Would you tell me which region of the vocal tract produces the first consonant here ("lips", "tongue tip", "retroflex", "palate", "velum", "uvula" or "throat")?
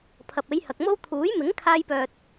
lips